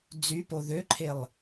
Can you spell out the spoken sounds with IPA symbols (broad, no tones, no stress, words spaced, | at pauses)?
d͡zypo ðøǃʰelˠ